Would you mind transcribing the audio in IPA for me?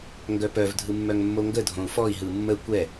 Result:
ŋɡœpœv dʱɯmːœŋmːoŋɡə dʱõu̯fɔi̯ ɦɯmːə kʷɛ

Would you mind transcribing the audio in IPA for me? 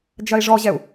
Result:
d͡ʒɐi̯ʐɔʑɛu̯

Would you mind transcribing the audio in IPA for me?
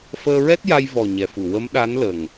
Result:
fəː˧ɹɛ˦˥t̚ja˧j vɔ˨˩ ɲɛ˨˩fu˨˩˨ wə˧˥mɗa˧˥nlə˨˩ŋ

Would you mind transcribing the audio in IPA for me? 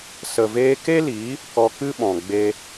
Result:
sə˨veː˧ke˦liː˨˦ | kɔ˧kɨ˦ɓɔ̃˨ɡ͡be˧

